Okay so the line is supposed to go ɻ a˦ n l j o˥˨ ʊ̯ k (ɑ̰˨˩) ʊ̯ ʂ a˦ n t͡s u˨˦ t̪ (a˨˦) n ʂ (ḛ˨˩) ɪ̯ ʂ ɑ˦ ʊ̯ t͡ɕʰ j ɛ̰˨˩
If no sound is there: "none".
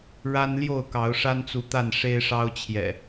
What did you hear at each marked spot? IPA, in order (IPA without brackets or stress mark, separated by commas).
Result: ɑ˨˦, a˥˨, e˦